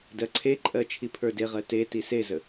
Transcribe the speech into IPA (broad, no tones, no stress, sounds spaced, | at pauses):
d ɜ ǀʰ e ǃʼ ɜ t͡ʃʰ i pʰ ə˞ d e ʁ ɜ t e t i s e z ə